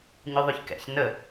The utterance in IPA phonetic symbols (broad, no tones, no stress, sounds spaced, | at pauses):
ɲ ʊ ðˤ ʊ ç k ɛ̰ ç n ə